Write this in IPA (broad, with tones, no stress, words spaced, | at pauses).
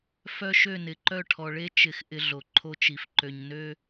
fœ˦ ʃø˦˨nɪ˨ ǃœ˦˨ʈʰɔ˨ɭe˦ t͡ʃɪ˦˨xʔɪ˦ ɮo˨ǃʰo˦t͡ʃi˨f ǃø˨ɲnø˦